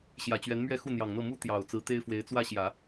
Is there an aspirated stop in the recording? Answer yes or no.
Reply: no